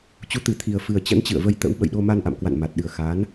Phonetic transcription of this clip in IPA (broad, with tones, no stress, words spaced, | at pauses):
t͡ɕu˨˦t̪ɨ˨˩t̪ʰi˨˩ə̯fɨ˨˩ə̯ t͡ɕə̰˧˥nt͡ɕɨ̰˧˨ə̯və˧j t̪ə̰˧˥wɓə̰˧˨jɗo˧ma˧n ʔa̰˧˨mkwa̰˧˨nma˨˩t̚ɗɨ˨˩ə̯ xa˨˦n